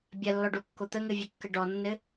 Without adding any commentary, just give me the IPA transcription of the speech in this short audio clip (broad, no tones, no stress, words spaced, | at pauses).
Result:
bʲɐlːɔɖokːo t̪əŋɘvʲɵkːə ɖɔnːɘ